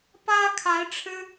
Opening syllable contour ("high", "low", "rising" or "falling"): high